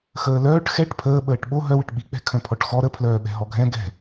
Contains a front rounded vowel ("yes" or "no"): yes